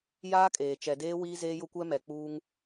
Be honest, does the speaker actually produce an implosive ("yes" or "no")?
no